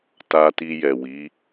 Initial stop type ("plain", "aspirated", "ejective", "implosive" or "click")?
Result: plain